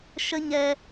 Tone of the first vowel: high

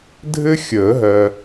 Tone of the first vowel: high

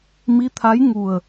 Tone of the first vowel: rising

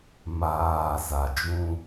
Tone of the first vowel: low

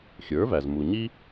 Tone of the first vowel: rising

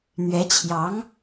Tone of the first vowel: rising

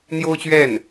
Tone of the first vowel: high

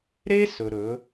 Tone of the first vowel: high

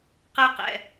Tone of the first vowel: high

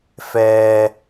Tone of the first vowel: low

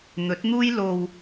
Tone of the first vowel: rising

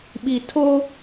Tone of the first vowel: low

